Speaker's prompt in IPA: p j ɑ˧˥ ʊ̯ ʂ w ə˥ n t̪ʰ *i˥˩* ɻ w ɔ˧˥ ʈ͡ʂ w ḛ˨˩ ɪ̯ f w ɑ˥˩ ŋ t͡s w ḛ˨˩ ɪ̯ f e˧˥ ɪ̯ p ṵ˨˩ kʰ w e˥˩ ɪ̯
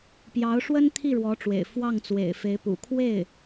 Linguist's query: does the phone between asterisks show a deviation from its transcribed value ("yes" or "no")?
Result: no